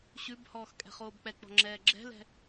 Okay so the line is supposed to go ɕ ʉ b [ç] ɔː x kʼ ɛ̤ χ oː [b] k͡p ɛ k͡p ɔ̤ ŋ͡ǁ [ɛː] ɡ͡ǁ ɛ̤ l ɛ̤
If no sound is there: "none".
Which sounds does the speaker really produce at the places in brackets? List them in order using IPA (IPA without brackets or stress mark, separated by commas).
h, b, ɛː